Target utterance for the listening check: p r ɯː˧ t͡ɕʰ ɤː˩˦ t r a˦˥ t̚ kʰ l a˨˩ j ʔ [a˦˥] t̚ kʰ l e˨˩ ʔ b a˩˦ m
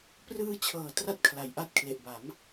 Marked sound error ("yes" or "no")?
no